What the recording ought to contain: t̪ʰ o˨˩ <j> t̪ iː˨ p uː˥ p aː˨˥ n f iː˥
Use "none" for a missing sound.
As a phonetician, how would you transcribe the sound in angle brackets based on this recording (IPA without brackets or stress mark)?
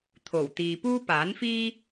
w